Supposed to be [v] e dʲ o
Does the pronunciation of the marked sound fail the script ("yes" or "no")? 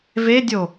no